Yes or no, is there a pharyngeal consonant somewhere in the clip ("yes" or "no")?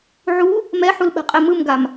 yes